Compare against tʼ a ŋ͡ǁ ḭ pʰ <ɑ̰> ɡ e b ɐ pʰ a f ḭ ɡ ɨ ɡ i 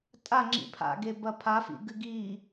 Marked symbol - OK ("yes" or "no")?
no